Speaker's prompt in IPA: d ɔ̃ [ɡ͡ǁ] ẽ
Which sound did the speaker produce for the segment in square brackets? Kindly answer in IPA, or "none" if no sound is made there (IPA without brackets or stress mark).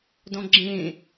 ɡ͡ǁ